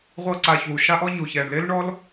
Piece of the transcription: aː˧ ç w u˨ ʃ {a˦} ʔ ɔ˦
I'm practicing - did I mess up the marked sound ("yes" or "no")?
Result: no